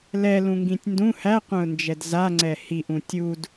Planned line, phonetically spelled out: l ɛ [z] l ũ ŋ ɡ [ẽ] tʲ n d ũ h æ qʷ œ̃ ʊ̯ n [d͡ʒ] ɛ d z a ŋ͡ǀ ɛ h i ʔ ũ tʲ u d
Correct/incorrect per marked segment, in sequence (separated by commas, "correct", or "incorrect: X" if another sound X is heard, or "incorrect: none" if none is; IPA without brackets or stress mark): incorrect: none, incorrect: ĩ, correct